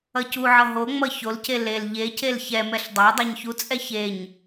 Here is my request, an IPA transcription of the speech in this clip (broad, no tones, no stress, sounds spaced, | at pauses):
ʌ c u ʕ ʌ ɦ o ŋ͡m ʌ ç o l c e l e l ʎ e c e l ç ɛ m ɛ ɬ dˤ a dˤ a ɲ ç u t͡sʼ ɛ ç e ɲ